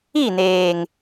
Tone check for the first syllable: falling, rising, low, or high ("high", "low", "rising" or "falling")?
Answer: falling